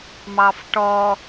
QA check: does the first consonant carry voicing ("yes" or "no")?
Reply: yes